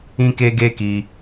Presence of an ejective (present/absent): absent